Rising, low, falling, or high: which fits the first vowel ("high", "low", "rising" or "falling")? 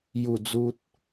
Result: low